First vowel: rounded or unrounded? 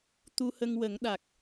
rounded